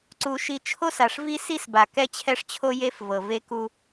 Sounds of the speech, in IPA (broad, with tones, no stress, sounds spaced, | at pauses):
ǀ u˨ ʃ i˨˦ t͡ʃʰ o˦ s a˨ ʂ v i˦ s i˦ s b a˨ k ɛ˦ t͡ɕʰ ɛ˦ ʂ t͡ɕʰ o˦ j e˦ f v ɤ˨ v e˦ k u˦